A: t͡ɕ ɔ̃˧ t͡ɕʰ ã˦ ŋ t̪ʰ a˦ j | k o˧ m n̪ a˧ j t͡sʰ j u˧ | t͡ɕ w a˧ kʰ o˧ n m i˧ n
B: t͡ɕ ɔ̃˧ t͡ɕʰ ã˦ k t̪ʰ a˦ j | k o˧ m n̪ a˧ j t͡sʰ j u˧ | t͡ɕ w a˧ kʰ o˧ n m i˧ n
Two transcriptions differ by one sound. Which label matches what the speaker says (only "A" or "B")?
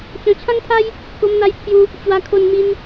A